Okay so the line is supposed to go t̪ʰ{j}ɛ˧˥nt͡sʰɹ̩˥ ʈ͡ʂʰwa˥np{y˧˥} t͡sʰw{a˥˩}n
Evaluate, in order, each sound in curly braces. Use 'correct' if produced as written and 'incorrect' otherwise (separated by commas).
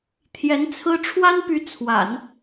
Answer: correct, correct, incorrect